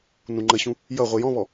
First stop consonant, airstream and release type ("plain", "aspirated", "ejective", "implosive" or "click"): click